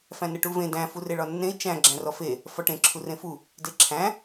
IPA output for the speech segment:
fæ̃nɘʈuvẽ dæ̃ fureɭɒnːẽi̯ t͡ʃæ̃ ɡ͡ǁæ̃rɔfe | fɒʈẽ ǁʰurẽfu | deǁʰæ̃

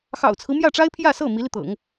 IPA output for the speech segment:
xɑ̰˨˩ʊ̯t͡sʰɹ̩˦mjä˥˩ʈ͡ʂa˥ɪ̯ pʰjä˥˧sɤ˥˩ mi˧˥li˧t̪ɤ̰˨˩˦ŋ

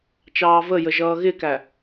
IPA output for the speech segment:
t͡ʃɑːvəjə ʒʌːɣɪkæ

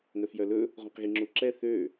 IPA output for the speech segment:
nœfjœlɵ | ʁõqɣiŋ͡ǁuǁɛ θø

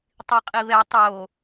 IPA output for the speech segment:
tˤiqʼiβɛ tˤo

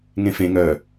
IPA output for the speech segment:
ŋẽfẽ ŋœ

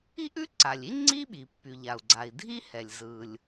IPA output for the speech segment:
i˥ʔʉ˥ǀa˩lʲi˥ ŋ͡ǀi˥ɓi˩pːy˩ʎa˩u̯ ɡ͡ǀa˩i̯dʱi˥hɛ˩lʲ zɯ˩lʲ

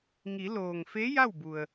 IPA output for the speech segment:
ŋi˩˧loː˩ŋfe˧˥ ja˥˨wbu˩ə̯

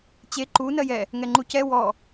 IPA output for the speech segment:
t͡ɕe ǃu nɜjɛ | ŋɛŋ͡ǃucɛ wɔ

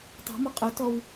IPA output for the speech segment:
tˤo̤mɒ qʼɵtɔw

